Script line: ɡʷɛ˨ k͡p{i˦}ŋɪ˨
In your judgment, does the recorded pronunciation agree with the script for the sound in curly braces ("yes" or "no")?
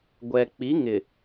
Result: no